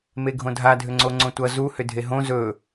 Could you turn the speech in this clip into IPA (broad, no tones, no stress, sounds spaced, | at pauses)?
m e ɡʱ õ dʱ a dʱ ʏ ŋ͡ǀ o ŋ͡ǀ õ tʷ ʌ z u h ʏ dʱ e ɦ õ z ɵ